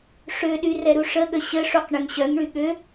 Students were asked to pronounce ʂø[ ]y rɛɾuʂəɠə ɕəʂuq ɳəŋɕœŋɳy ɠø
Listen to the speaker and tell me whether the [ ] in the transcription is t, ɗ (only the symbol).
ɗ